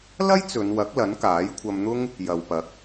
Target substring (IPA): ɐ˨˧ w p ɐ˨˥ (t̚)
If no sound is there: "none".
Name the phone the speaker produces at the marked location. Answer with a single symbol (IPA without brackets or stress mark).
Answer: k̚